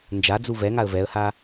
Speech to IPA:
nd͡ʒad͡zu vɛŋaə̯ vɛə̯ha

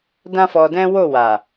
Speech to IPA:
dã˦fɔ˧dɛ̃˦ wo˦˨wa˨

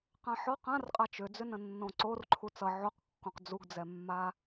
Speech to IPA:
qãħɔ qãrqʼat͡ʃ ʏd͡zʏnə̃nːõ ǀorǃʰu t͡sʌ ʕoqkːõq d͡zuɡd͡zɛmːa

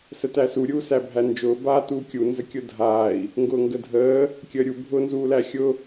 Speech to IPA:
sətæsu ɾʲuːsæbʱænd͡ʒʊː baːtuːkʲu nzəkʲʊdʱaːi̯ | ŋɡʊːŋɡədʱəː | kʲəːɾʲu bʱʊːnzuːlæxʲʊ

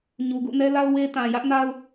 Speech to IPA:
ɲu˨ɡṵ˦˨nɛ˦la˦ʊ̯ we˦ tã˨ jä˦ʔna˦ʊ̯

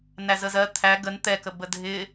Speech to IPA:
næzəzɜ t̪ʰæ ɡən t̪ɛkəbə dʱɪ

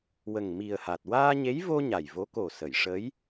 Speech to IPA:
wə˨˩ŋmi˨˩ə̯ha˨˩t̚ waː˧ɲe˧˥jvo˧ ɲa˨˩jvo˧˥ ko˨˩sə˨˩˨jʂə˧˥j

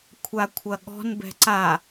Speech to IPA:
kʷʰakʷʰɐɠɔ̤n bɛ̤ǀa

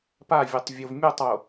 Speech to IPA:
pavʲotˤ vʲovmʲotˤwo

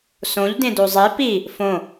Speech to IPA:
sõʎ dẽdozˤe pi | fõ

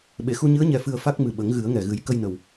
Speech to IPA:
ɓe˨˩˨xu˧ɲɨ˧˥ə̯ ɲɛ˧fɨ˧ə̯ fa˦˥k̚mɨ˨˩ɓə˨˩˦ŋ ɣɨ˨˩˦ə̯ŋɛ˨˩ɣɨ˨˩˦j kə˧jnə˨˩w

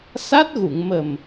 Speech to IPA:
sa˦˥t̚ɣu˨˩˨ŋmə˨˩m

